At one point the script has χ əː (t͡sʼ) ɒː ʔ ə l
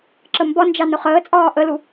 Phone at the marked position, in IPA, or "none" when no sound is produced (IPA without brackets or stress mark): t͡sʼ